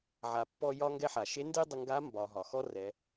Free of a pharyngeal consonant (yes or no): no